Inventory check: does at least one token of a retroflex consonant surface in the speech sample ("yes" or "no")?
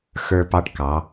yes